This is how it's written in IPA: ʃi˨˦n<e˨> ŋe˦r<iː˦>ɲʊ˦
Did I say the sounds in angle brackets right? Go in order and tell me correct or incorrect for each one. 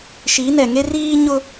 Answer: incorrect: ɛ˨, correct

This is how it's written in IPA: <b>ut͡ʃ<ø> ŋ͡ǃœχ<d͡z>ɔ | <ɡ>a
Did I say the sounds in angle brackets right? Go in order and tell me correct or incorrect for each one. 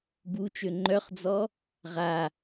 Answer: correct, correct, correct, incorrect: ʁ

